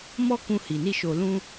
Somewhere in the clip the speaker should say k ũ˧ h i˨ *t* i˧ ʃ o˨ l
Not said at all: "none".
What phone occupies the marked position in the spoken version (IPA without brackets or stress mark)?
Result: n